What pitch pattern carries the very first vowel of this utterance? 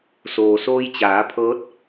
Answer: low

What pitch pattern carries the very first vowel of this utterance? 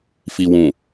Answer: low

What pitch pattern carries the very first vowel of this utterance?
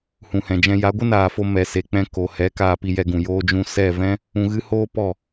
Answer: low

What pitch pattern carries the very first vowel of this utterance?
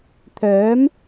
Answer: rising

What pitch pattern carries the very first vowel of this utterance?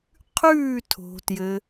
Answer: falling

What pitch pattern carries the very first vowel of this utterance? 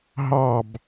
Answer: falling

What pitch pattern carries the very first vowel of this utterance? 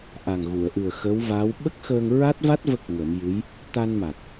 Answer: low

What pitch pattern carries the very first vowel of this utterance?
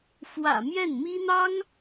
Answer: low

